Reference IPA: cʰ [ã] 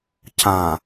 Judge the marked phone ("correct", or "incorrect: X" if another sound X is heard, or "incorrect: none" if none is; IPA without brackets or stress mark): correct